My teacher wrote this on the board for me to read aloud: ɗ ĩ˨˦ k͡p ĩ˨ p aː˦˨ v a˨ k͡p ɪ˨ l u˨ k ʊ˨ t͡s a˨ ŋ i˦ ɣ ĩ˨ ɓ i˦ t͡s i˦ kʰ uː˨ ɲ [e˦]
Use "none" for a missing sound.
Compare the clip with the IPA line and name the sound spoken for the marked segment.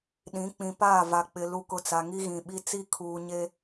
e˦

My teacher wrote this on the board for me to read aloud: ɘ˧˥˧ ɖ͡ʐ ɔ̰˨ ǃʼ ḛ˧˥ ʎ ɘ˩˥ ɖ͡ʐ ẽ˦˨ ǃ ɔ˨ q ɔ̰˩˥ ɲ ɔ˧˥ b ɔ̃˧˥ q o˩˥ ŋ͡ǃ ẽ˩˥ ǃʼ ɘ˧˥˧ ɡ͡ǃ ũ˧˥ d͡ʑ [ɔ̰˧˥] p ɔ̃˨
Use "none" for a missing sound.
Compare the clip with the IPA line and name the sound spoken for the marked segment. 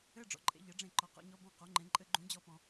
ɔ˧˥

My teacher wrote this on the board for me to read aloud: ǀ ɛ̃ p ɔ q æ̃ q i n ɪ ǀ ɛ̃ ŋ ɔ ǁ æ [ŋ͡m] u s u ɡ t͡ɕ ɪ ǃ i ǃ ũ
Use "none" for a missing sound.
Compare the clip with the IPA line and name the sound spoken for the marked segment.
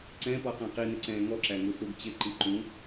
ŋ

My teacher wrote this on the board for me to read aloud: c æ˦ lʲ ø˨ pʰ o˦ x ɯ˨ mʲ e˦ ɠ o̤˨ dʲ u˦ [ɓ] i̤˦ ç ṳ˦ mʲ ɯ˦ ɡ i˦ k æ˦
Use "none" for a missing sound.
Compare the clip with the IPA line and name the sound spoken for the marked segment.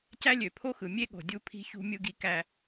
pʰ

